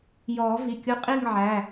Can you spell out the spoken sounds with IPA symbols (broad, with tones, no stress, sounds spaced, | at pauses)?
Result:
j ɔː˨˩˦ v i˩˧˩ kʲ u˧˥ qʼ i˥˧ ŋ ʕ æ˩˧˩